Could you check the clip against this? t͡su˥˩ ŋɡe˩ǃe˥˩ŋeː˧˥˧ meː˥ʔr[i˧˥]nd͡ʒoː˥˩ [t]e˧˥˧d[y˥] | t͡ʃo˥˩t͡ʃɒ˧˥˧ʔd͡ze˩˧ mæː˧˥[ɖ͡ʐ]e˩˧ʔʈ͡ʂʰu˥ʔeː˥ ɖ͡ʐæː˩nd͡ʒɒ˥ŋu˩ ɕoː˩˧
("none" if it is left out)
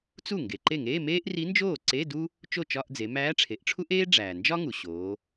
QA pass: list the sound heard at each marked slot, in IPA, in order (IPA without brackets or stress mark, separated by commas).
i˧˥, ǀ, u˥, ʈ͡ʂʰ